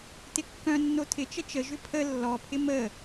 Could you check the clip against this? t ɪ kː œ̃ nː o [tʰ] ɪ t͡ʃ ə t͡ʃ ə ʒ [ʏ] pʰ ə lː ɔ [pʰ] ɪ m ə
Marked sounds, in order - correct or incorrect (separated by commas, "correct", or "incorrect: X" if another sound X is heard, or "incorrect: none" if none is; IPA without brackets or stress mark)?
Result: correct, correct, correct